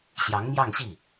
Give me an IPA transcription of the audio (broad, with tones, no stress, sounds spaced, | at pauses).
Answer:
ɕ j ɑ˧˥ ŋ m j ɑ˥˧ ŋ ɕ i˥˩